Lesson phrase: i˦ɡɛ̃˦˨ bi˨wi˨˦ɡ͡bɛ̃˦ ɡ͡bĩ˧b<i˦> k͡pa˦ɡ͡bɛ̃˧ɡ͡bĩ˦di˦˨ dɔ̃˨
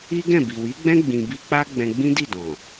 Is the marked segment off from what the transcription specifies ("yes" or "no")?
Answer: no